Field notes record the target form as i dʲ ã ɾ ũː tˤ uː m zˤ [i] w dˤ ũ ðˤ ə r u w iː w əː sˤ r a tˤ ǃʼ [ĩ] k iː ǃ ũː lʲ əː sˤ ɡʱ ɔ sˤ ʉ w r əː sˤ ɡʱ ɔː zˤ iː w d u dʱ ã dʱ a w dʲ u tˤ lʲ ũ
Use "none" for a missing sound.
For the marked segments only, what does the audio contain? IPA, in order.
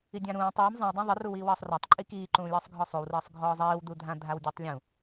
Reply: ĩ, i

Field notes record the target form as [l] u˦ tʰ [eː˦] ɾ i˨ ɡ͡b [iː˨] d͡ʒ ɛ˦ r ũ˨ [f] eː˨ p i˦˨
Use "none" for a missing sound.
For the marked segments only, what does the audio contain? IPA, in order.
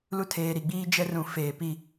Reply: l, eː˨, iː˦, f

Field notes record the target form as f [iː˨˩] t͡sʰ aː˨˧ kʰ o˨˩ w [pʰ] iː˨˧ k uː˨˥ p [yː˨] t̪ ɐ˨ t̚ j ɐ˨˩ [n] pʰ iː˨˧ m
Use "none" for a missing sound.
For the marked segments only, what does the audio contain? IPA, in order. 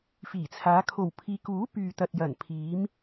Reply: iː˨˩, pʰ, yː˨, n

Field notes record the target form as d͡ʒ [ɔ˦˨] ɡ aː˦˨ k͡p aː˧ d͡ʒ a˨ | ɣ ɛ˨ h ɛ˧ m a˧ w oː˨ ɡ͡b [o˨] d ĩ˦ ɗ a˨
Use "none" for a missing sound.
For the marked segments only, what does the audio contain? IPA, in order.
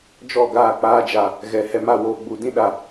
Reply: ɔ˦˨, u˨

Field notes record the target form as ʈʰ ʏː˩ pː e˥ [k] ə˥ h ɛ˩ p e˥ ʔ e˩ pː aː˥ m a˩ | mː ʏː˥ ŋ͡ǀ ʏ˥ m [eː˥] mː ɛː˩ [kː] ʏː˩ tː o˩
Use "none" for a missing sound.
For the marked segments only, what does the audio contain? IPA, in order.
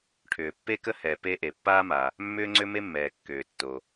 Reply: k, e˥, kː

